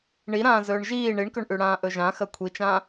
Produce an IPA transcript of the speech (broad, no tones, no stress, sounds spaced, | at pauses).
ɳ i ɾ ãː z ɵː ɳ ʒ iː ɳ i ɳ k ɵ ɳ ʔ ʉ ɽ ãː ʔ ɵ ʒ ã x ɐ kʷʰ i t͡ʃ ãː